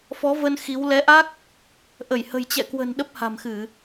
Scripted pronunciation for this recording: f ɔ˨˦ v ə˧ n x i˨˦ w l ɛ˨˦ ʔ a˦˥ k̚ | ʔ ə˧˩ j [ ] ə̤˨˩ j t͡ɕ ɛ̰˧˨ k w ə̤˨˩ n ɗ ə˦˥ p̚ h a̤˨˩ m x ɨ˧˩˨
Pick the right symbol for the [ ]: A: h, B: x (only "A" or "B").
A